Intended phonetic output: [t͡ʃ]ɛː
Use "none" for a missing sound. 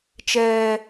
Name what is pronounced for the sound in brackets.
t͡ʃ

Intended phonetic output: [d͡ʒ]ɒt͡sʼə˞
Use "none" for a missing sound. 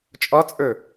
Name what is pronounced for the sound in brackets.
t͡ʃʼ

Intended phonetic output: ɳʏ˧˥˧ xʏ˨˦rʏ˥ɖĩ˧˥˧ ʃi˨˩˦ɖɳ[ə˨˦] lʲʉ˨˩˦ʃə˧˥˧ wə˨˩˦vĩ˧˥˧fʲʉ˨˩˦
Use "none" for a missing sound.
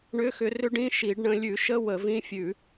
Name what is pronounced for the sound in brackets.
ə̃˨˦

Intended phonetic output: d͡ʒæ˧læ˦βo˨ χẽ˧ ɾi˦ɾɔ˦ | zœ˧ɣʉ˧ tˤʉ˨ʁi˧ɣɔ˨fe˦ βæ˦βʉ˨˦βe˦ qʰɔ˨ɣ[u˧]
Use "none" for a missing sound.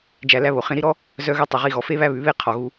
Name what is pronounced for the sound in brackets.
u˧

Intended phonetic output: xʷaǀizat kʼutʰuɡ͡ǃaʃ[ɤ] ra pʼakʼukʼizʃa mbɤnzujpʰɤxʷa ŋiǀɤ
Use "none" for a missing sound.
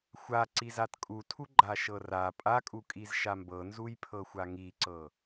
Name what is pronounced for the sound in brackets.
ɤ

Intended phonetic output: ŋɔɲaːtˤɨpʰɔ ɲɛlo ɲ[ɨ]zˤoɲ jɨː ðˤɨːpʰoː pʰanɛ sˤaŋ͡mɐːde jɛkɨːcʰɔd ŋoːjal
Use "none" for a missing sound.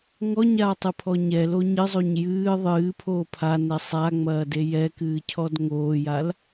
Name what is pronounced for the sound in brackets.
ɨ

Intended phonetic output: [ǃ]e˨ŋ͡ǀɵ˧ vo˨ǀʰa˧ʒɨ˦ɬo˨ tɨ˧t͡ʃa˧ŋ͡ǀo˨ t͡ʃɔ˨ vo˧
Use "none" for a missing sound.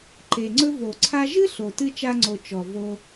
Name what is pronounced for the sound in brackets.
ǃ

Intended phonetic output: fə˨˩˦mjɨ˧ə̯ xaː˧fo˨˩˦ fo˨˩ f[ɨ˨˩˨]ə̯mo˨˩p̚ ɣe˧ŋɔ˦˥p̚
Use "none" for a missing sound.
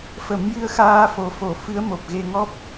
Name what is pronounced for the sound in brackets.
ɨ˧˥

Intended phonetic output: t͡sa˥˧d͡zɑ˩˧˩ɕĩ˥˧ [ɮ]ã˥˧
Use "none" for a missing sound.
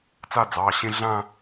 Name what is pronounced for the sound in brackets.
ɮ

